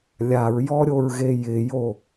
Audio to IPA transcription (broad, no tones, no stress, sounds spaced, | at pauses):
lʲ a ɹ j ɔ ɾʲ o ɹ ɣ e j ɪ j o